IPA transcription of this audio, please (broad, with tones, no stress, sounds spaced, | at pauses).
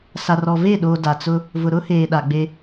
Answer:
s a˨ r ɔ˨ v e˦˨ ɗ oː˨ d a˨ t͡s ʊ˦ | v ʊ˨ ɾ ʊ˦ h eː˨ ɗ a˨ ɡ͡b e˦